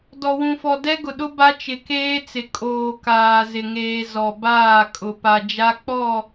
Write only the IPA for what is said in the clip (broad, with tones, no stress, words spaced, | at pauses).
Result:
dɔ˨wũ˨fɔ˨ dɛ˦ɡʊ˨ɗʊ˦ ba˦t͡ʃɪ˨keː˦t͡sɪ˨ kʼoː˨ kaː˨ zɪ˨ŋeː˨ zɔ˨baː˦˨kʼʊ˨ pa˨d͡ʒa˦k͡pɔ˦˨